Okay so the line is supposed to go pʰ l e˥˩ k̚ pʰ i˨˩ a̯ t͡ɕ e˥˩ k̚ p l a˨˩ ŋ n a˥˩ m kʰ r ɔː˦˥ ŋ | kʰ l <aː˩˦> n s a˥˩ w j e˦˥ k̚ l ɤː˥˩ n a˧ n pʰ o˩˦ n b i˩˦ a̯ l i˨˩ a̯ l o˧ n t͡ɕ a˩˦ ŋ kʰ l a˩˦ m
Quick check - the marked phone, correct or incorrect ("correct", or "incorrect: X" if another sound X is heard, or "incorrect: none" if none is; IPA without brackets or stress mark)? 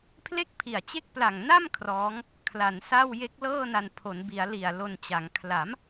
incorrect: a˩˦